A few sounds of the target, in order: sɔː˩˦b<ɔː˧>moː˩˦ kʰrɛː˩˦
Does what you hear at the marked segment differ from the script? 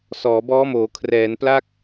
yes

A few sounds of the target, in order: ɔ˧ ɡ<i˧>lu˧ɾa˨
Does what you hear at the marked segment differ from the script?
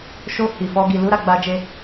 yes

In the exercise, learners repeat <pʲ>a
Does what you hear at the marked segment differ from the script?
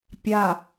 no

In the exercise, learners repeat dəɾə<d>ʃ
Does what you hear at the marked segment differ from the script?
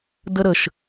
yes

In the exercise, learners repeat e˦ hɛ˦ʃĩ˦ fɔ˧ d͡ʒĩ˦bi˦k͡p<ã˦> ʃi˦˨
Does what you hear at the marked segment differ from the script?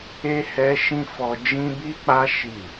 yes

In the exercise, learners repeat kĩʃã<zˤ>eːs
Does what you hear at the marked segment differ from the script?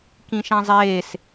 no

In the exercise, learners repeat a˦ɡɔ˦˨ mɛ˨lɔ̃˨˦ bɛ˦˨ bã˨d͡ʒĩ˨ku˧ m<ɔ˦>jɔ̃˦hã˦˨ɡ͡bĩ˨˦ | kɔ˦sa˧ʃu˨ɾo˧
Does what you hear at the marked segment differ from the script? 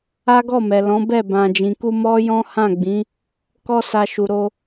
no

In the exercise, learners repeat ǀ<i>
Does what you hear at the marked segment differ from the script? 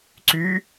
yes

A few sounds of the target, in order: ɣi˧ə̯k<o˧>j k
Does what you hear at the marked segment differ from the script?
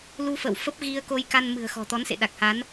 no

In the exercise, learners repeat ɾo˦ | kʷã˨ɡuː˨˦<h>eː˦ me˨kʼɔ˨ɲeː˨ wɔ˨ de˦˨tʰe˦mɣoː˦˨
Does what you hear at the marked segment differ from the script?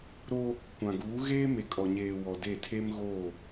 yes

